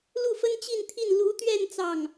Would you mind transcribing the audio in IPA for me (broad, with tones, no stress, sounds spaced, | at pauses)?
l u˥˩ f ə˥ n t͡ɕ i˥˧ n t̪ʰ i˥˩ n l u˧˥ t̪ ɥ ɛ˥˧ n t͡s ɑ˥˩ ŋ